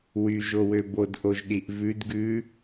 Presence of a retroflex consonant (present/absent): absent